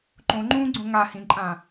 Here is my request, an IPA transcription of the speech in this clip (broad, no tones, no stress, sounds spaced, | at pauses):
ǃ õ ŋ͡ǃ ũː ɡ͡ǀ õ ŋ a h ĩ ǃʼ ã